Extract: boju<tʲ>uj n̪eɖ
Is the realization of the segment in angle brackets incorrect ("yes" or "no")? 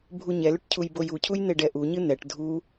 yes